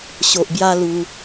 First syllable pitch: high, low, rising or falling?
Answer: low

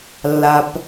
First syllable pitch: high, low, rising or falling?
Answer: low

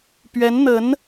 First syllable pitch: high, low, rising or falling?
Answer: rising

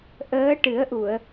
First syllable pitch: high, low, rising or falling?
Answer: rising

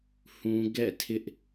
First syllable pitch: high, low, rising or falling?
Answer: high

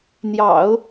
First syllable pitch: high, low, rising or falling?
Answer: low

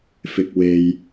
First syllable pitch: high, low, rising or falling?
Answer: low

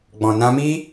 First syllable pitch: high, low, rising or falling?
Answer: low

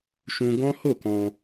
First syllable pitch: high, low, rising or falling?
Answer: high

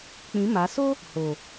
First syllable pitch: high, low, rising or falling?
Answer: rising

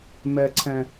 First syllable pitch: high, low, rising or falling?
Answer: low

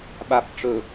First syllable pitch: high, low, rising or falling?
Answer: low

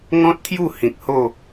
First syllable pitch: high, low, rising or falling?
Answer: high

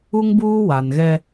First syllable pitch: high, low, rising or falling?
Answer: high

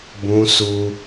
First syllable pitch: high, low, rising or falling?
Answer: high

